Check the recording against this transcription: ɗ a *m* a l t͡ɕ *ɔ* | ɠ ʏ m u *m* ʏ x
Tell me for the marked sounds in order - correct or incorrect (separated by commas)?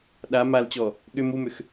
correct, correct, correct